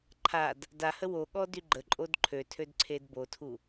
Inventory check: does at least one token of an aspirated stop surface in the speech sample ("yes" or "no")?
yes